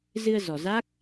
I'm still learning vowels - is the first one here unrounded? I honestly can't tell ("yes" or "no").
yes